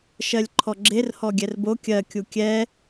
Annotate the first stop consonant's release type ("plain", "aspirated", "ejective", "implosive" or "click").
click